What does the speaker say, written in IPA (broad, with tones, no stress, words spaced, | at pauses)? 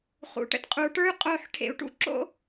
χṵ˩˧˩ʈə̰˥t qʼu˩˧ʈə˞˥y̯ qʼo˦˨ħʈʰḛ˧˩˧u̯ ʈṵ˥ ǁo̰˥